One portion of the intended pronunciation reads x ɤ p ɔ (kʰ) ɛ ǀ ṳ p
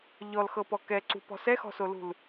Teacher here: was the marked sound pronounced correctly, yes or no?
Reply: no